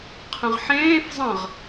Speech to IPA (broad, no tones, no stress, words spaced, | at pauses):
qʰə̃ʁħẽːf zˤə̃ʁ